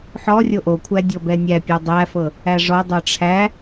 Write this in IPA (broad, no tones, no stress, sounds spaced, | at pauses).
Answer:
ħ ɔ rʲ o ʔ o kʷʰ æ dʲ ɔ b ɛ nʲ æ pʲ ə˞ dˤ æ f ɤ | æ ʐ ɔ dˤ ə˞ ʈ͡ʂʰ æ